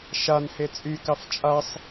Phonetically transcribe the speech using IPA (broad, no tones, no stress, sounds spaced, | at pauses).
ʃ a n h e t͡sʼ y k ɑ f t͡ʃʼ a sˤ